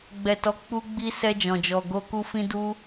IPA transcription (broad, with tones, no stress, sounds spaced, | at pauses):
ɡ͡b ɛ˨ t ɔ˨˦ k͡p u˧ ɡ͡b i˧ s ɛ˧ d͡ʒ ɔ̃˨ d͡ʒ ɔ˨ ɡ o˧ k u˧ f ĩ˦ d u˦